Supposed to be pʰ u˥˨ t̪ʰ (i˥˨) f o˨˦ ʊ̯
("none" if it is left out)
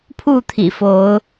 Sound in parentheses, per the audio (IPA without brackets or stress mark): ḭ˨˩